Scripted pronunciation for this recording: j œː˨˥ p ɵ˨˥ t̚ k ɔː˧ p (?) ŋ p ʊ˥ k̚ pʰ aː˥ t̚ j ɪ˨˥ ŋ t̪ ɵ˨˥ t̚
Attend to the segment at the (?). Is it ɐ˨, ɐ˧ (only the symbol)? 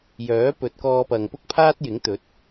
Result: ɐ˨